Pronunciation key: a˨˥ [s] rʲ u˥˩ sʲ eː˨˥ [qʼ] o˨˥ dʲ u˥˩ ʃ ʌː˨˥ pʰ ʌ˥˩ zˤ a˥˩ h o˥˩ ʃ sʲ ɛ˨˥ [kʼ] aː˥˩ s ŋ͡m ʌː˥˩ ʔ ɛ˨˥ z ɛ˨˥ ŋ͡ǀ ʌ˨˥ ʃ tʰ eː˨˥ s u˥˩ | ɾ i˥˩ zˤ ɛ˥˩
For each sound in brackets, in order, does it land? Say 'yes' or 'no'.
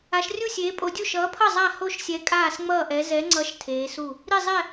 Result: no, no, yes

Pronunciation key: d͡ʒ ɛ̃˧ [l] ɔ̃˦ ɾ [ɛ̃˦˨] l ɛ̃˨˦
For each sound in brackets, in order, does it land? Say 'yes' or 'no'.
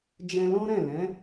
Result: yes, yes

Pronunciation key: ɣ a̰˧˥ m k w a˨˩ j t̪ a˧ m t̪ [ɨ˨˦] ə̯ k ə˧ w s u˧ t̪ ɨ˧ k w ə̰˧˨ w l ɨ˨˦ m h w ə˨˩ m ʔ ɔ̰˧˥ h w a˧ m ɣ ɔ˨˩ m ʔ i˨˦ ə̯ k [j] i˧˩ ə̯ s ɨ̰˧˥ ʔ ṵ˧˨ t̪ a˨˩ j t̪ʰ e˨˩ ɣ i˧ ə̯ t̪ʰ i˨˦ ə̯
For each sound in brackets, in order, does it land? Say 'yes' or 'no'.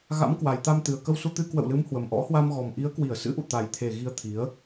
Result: no, no

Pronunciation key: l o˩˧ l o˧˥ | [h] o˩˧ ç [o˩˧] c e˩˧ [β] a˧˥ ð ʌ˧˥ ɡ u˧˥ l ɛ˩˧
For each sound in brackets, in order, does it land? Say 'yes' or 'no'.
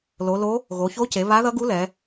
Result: no, no, yes

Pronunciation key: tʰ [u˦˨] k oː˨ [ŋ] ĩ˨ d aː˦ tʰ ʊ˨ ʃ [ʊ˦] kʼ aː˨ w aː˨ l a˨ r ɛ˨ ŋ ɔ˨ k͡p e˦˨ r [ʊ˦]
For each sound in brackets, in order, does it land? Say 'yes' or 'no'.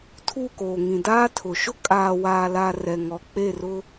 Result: yes, yes, yes, yes

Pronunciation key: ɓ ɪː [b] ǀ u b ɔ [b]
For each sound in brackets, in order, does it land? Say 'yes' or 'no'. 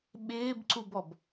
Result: yes, yes

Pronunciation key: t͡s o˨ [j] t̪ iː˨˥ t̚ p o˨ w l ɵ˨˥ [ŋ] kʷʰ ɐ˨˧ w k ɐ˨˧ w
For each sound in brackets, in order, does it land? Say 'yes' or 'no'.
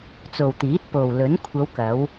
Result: no, no

